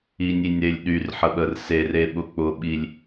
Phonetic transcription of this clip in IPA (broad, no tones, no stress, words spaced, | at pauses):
inʲinʲɾelʲ ɗyrħəɓər sereɓʊ k͡pʊɓilʲ